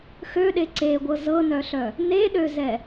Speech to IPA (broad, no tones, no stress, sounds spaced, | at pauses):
x ø ɗ e ǀ e ɡʷ ɤ z ɤ n œ ɬ œ | n e ɗ ø z ɛ